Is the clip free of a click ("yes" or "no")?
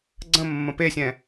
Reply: no